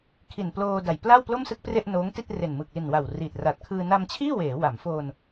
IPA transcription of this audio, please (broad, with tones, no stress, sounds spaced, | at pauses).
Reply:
kʰ i˨˩ n p l oː˧ d a˨˩ j p l a˥˩ w p l o˥˩ m s ɯ˥˩ k̚ p r e˥˩ ʔ n oː˦˥ ŋ t i˥˩ t̚ r e˨˩ n m ɯ˨˩ k̚ l i˨˩ n w a˨˩ w r i˨˩ t̚ r a˨˩ t̚ kʰ ɯː˧ n a˧ m t͡ɕʰ iː˥˩ w eː˩˦ w a˩˦ m f oː˧ n